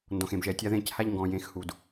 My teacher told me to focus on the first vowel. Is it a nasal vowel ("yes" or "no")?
yes